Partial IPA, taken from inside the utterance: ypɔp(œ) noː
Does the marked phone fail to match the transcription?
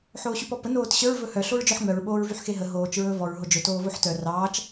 yes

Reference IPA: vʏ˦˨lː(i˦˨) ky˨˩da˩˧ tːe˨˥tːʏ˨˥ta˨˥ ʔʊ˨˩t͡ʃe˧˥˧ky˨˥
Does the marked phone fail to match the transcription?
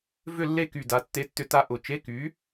yes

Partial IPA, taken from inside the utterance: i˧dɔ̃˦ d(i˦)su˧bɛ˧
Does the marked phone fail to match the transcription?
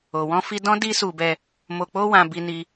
no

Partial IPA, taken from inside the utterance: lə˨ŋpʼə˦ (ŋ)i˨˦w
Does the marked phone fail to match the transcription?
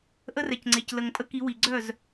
yes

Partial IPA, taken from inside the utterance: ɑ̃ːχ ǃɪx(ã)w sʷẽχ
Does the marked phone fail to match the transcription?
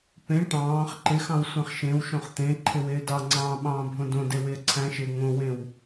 yes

